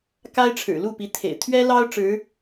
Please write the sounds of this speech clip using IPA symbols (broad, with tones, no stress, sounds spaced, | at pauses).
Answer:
k a˥ ɪ̯ ʈ͡ʂʰ ɻ̩˨˩ l u˥˩ p i˧˥ t̪ʰ ḛ˨˩ ɪ̯ t̪ʰ ɥ ɛ˥ l ɑ˥ ʊ̯ ʈ͡ʂ ɻ̩˧˥